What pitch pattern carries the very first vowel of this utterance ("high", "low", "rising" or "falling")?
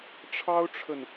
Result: high